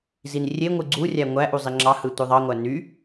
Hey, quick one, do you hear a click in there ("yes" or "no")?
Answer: yes